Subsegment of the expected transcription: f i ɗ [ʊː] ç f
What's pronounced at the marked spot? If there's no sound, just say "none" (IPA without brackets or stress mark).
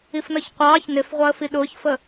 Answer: ʊː